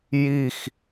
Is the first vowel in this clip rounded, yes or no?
no